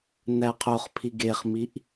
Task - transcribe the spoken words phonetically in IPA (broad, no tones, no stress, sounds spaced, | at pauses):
n æ qʰ o χ pʰ i ɡ e χ m i ʔ